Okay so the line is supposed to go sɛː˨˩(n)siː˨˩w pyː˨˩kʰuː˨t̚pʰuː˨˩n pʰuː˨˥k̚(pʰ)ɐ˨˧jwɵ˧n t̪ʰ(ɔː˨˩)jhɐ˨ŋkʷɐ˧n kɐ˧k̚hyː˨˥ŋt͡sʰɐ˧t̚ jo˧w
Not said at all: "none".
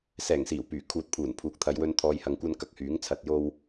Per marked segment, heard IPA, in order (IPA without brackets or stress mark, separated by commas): ŋ, t̪ʰ, ɔː˨